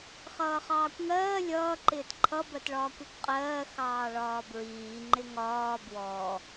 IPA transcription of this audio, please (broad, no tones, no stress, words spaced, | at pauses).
χʌːχɑːkʷŋɜː lʲʌː ǃɪːtǃʰʌ bɜtɭɒːkʷɔkʷqʼɜː xɑːɭɒːbɹiː ŋ͡ǃɪŋɒː bwɔ